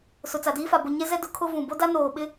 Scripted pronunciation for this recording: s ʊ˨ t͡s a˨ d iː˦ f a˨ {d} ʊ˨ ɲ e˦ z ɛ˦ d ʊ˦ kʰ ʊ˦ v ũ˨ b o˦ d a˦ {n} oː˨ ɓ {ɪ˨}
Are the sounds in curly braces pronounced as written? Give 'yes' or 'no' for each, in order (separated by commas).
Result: no, yes, no